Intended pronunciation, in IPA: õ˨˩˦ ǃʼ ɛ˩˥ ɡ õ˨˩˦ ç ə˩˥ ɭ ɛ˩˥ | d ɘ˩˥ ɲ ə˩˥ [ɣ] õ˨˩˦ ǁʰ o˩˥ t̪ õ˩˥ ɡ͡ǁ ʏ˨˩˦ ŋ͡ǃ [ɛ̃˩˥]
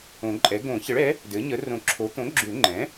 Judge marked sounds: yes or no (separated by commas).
no, yes